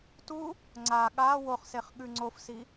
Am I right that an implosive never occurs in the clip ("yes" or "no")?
no